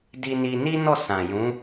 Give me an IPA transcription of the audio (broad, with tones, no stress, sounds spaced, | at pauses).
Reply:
d i˧ n i˧ n i˦ n ɔ˦˨ s ã˨ j ũ˨˦